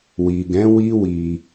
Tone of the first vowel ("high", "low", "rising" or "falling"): low